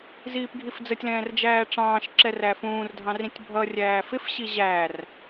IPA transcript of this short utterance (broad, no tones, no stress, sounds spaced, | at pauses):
z iː p ɡʱ i f d͡z ə tʲ l ɛ̃ː r d͡ʒ æː ʈ͡ʂ ɑ̃ː ʃ ǁ ɛ r æ f ũː r dʱ ɑ̃ r ĩ tʲ bʱ ʌ rʲ æː f ɪ f ɕ i ʑ æ r